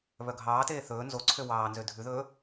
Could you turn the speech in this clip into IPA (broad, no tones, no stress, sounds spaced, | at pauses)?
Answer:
β œ ɡʱ ɑː t eː θ ɵː n z o ǀʰ ø w ɑː n z ø dʱ ʉ ð ɵː